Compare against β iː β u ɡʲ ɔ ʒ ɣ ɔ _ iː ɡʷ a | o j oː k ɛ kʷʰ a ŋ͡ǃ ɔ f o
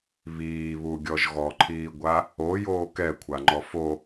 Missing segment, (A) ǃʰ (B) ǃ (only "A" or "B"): A